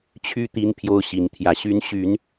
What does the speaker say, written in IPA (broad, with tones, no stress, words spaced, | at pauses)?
t͡ɕʰy˦ t̪i˦n pʰjo˦ʊ̯ɕi˨˦nt̪ʰjä˨˦ɕy˦n ɕy˨˦n